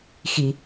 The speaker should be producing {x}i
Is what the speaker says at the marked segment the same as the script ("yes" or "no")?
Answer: yes